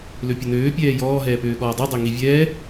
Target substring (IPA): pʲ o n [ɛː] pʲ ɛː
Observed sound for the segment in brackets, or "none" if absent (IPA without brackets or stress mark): øː